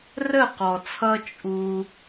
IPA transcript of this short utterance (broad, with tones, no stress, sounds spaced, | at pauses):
r ə˦˨ q ɔ˨ t͡sʰ ʌ˧ t͡ʃʼ u˦